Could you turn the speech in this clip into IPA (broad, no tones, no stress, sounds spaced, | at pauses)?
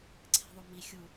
ǀʰ ɛ̤ ðˤ o m i xʲ u